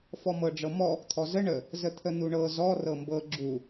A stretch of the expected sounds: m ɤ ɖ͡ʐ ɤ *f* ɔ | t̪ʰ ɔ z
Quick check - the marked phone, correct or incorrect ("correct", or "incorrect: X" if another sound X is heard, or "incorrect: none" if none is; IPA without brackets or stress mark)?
incorrect: m